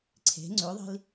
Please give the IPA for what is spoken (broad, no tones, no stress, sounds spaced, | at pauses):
ǀʰ e̤ ŋ͡ǀ ʉ ðˤ i̤ l